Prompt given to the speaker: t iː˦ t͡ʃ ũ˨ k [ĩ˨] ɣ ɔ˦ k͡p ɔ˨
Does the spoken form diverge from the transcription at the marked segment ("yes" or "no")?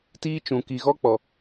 yes